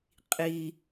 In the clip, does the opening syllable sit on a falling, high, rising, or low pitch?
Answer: low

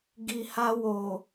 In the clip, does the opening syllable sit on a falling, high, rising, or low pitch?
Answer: low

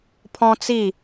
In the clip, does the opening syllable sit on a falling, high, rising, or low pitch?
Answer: high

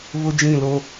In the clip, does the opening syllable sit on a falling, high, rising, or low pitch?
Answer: high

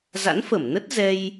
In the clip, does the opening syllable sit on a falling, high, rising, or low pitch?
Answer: rising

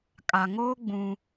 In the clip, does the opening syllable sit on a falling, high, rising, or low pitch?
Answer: low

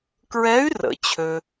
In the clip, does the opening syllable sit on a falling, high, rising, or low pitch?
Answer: rising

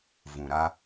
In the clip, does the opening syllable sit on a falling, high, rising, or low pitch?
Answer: low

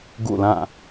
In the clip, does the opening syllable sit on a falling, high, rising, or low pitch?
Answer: falling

